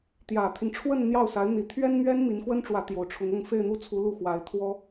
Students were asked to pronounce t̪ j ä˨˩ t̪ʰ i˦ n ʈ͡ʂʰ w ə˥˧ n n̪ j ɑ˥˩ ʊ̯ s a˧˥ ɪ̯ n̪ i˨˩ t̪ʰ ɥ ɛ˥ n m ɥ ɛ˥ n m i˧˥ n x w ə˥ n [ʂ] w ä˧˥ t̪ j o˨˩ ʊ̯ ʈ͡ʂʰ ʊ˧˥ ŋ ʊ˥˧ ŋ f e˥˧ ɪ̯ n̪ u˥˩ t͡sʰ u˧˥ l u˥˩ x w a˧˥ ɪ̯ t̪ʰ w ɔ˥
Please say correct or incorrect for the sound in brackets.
incorrect